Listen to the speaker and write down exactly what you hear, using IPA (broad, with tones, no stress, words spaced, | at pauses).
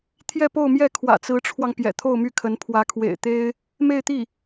t̪ʰjɛ˥˧po˥˧ʊ̯mjɛ˥˩ kʰwä̰˨˩t͡sɹ̩˧˥ʈ͡ʂʰwɑ˧ŋ pjɛ̰˨˩t̪ʰo˥˧ʊ̯my˥˩kʰə˧˥n pʰwä˧˥kʰwḛ˨˩ɪ̯t̪e˥ɪ̯ | me˥˧ɪ̯t̪i˥˩